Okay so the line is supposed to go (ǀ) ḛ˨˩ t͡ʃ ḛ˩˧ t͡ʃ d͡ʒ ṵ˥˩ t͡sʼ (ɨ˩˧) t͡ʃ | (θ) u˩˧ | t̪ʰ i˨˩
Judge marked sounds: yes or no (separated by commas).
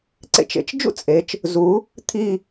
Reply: yes, no, no